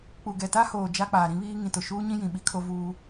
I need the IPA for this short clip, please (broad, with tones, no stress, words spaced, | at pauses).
k͡pu˨ɡɛ˨ta˦hoː˨ d͡ʒa˦k͡paː˨ɾĩ˦βiː˦ ŋĩ˨tʊ˨ʃuː˦ɲĩ˦ jĩ˨ ɓi˦kʰo˦vuː˦